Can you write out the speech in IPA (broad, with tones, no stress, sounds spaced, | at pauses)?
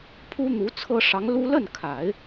pʰ u˥ n̪ u˧˥ t͡sʰ ɤ˥ ʂ ɑ˧˥ ŋ l u˥ l ə˥˩ n kʰ a˨˩˦ ɪ̯